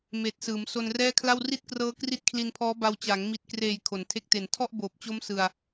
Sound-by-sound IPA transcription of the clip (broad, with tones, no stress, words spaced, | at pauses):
meː˨˩t̚sɯː˩˦m so˧nrɛː˥˩kʰla˥˩w ri˥˩t̚krɤː˦˥ kri˦˥t̚kʰli˧npʰɔː˦˥ba˧w t͡ɕa˩˦ŋmi˨˩t̚kreː˨˩j kʰo˩˦ntʰe˦˥k̚te˨˩n tʰɔ˥˩ʔboː˨˩p̚t͡ɕo˦˥m sɯ˧a̯